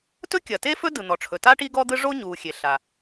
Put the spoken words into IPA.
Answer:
t ɵ˥ kʲ ɐ˩ t e˥ f ɵ˥ d ɯ˩ n̪ ɔ˩ ʈ͡ʂʰ ɵ˩ t a˥ ʈ i˥ ɡ ɔ˥ d̪ ɯ˥ ʐ o˥ ɲ u˩ xʲ e˩ ɬ a˩

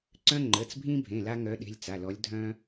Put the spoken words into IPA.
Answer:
ǀ œ̃˦ ŋ͡ǃ ə˩˧˩ t͡s bʱ ĩ˦ bʱ ẽ˩˧˩ l a˦ ŋ œ˨˦ ɗ e̤˩˧˩ lʲ t͡s a˩˧˩ l ɔ˨˦ lʲ dʱ œ̃˦

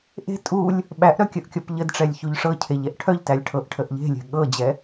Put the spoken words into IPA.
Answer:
ʔ e̤ tʼ u lʲ | ɓ æ ʔ ɾ œ kʲ ə ʔ kʲ ɔ p ʎ ə d ʈ͡ʂ ɛ lʲ ç u ʎ ʂ ɤ cʰ e ʎ ɛ ʔ ʈʰ œ ʎ t æ lʲ ʈʰ ɤ ʔ ʈʰ ə ʔ ʎ e̤ lʲ ɛ̤ ɠ ɤ d͡ʑ ɛ

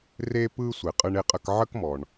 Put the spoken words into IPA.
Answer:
r e˧ p ɯ˧ sʷ e˩ qʼ ɯ˧ ɳ e˧ qʼ ə˧ k ʕ ə˥ k m ɔ˩ ɳ

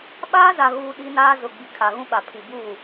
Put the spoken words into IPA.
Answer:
ɓ aː˦ z a˨ ɣ uː˨ ɗ i˦ n aː˦ z ʊ˨ ɡ͡b i˨ kʰ a˨ ɣ ũ˦ ɓ a˨ pʰ i˨ b uː˦˨

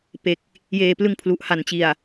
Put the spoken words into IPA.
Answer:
p e˨˩ k̚ | j eː˨˩ p l ɯ˧ ŋ pʰ l u˨˩ ʔ h a˨˩ n t͡ɕ i˨˩ a̯

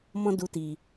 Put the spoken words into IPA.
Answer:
m ɔ̃˦ d u˧ t i˨

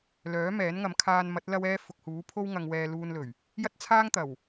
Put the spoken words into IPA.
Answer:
l œː˨˥ m ɛː˨˥ n ŋ ɐ˨˧ m kʰ aː˧ n m ɐ˨˥ t̚ l ɐ˧ w ɛː˧ f ʊ˨ k̚ h uː˨˥ pʰ o˥ w ŋ ɐ˧ ŋ w ɛː˧ l uː˧ n l ɵ˨˩ ɥ | j ɐ˥ t̚ t͡sʰ aː˥ ŋ t̪ ɐ˨˩ w

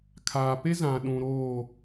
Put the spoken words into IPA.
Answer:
kʰ aː˨ p e˦ z ã˨ ɗ ũ˨ ɾ oː˦˨

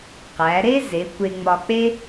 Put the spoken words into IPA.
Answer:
q æ˩˧ ɾ e˥ z e˩˧ kʷ e˧ ŋ͡m ɒ˧ k͡p e˥

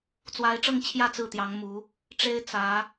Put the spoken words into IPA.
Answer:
t͡s w a˧˥ ɪ̯ ʈ͡ʂ ɤ˥˧ ŋ t͡ɕʰ j ä˥˧ t͡s ɹ̩˥˩ t̪ j ɑ˧˥ ŋ m u˧˥ | ʈ͡ʂ e˥ ɪ̯ t͡s ä˧˥

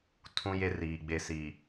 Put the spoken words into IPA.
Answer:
tʰ ũ˦ j e˦ r iː˨ ɡ͡b e˨ s i˨

